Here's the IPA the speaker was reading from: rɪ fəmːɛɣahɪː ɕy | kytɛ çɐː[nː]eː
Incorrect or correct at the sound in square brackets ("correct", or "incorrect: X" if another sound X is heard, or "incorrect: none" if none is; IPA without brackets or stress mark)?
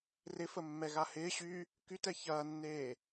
correct